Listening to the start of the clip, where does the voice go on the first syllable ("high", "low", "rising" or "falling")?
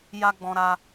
high